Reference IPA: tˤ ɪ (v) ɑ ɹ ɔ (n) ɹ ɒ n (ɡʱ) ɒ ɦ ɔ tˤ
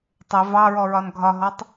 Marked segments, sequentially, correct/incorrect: correct, incorrect: none, correct

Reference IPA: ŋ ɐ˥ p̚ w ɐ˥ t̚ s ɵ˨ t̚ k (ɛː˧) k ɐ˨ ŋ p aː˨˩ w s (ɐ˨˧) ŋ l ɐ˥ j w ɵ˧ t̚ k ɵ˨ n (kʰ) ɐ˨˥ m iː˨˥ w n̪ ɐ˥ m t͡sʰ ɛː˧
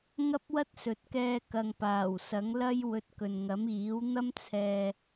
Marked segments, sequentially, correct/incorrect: correct, incorrect: ɐ˨˥, incorrect: ŋ

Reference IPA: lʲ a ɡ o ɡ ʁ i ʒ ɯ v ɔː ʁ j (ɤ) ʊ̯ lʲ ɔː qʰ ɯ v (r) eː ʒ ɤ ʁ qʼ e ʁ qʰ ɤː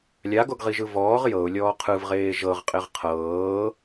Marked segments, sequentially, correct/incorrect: correct, incorrect: ʁ

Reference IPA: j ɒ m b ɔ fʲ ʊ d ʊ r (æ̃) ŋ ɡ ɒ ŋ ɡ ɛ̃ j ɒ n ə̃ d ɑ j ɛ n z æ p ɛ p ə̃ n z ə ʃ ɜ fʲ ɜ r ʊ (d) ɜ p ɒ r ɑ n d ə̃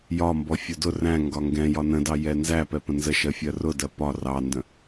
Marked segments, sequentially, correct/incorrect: correct, correct

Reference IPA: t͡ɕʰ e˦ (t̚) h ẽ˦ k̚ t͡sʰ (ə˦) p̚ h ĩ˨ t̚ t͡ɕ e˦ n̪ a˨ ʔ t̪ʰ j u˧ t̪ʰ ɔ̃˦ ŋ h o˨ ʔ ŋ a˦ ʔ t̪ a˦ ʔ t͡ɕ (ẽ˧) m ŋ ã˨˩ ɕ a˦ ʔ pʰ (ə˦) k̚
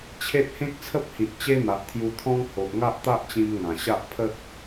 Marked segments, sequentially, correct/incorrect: correct, correct, incorrect: ĩ˧, correct

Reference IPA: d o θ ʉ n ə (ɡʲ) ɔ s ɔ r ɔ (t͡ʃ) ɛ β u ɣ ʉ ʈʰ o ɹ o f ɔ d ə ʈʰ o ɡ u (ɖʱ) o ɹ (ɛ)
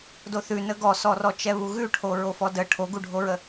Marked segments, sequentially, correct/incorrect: incorrect: ɡ, correct, correct, incorrect: ə

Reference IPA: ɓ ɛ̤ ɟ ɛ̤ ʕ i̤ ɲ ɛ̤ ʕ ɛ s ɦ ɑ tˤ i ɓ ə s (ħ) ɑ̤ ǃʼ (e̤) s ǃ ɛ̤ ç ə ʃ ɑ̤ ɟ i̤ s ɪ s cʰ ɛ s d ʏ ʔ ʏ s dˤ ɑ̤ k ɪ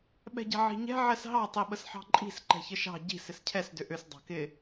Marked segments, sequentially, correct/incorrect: correct, incorrect: i̤

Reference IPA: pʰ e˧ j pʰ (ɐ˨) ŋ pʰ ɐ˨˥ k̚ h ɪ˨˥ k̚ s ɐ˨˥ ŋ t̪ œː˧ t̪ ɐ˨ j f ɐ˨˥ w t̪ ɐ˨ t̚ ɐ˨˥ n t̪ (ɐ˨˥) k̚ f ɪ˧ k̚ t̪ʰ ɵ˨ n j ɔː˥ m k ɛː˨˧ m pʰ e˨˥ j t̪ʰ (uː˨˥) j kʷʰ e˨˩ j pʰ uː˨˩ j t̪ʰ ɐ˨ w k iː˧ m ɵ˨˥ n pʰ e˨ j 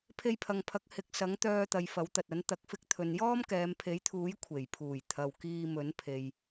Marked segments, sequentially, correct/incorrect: correct, correct, correct

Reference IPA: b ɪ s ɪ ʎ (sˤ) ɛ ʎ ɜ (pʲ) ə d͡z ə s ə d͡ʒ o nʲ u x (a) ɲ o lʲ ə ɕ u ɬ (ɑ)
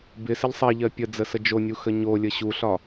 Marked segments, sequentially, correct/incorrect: correct, correct, incorrect: ə, incorrect: ɒ

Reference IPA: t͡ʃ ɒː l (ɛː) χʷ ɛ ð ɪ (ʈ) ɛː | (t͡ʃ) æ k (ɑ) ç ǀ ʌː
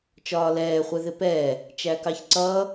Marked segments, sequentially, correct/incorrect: correct, incorrect: p, correct, correct

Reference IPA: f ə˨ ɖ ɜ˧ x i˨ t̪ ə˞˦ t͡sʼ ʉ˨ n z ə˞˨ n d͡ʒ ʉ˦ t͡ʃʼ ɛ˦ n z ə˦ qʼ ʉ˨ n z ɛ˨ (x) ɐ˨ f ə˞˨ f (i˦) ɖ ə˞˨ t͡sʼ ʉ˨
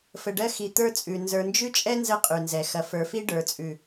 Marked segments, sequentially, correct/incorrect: correct, correct

